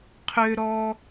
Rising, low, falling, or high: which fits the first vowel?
high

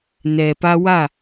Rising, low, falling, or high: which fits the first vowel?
low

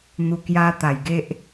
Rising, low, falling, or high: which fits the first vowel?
low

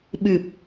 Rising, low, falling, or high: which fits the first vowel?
low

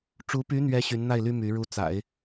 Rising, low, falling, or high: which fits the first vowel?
rising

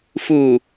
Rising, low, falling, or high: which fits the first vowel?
low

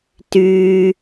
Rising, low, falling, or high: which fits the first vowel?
low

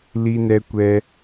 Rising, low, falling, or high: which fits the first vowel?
high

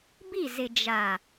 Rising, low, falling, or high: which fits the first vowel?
falling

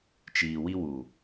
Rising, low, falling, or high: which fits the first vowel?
low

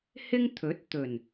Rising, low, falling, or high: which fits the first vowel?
high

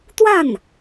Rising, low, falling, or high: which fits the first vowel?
falling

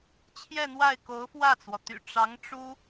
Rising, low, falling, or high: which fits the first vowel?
falling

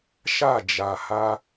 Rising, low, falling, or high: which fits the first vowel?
falling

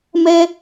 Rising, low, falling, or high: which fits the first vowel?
high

